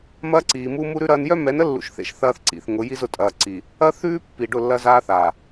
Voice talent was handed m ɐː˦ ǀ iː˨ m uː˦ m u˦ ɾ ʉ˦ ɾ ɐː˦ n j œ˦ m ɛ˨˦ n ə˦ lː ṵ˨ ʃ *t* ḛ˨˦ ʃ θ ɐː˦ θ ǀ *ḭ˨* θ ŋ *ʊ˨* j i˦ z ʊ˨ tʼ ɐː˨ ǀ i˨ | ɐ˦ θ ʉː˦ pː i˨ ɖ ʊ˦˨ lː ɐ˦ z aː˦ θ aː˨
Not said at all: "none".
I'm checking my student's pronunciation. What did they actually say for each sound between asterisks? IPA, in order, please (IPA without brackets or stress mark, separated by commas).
θ, ḭ˨, ʊ˨˦